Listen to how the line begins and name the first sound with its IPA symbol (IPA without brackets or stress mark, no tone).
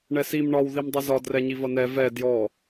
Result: ɳ